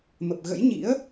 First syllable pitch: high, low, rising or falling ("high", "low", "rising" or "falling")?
low